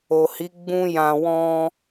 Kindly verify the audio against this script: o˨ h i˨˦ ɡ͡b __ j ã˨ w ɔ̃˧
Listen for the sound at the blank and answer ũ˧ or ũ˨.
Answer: ũ˧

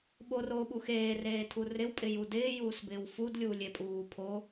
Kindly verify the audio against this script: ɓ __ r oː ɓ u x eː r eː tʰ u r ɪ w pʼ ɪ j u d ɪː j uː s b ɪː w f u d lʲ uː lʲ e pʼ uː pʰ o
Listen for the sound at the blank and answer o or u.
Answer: o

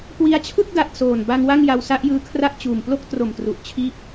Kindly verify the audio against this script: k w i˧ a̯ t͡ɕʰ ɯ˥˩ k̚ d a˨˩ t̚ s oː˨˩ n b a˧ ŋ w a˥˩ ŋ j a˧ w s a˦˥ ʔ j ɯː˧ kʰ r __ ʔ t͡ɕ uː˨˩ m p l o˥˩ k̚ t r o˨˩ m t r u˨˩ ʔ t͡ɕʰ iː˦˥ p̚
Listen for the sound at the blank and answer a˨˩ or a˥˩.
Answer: a˥˩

